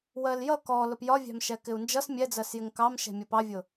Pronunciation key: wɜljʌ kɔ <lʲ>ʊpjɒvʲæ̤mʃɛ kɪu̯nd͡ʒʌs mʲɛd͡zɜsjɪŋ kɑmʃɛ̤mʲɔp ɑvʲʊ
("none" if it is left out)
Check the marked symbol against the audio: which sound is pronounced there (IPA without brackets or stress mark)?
l